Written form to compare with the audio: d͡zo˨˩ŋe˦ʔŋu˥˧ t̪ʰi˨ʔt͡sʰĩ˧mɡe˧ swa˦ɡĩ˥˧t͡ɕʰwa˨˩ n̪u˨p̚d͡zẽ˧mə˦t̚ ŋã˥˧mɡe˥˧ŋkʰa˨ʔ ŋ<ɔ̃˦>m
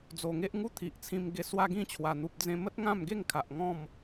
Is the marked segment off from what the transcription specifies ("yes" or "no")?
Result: yes